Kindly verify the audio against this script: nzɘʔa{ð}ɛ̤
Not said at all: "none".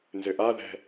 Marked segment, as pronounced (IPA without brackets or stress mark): ð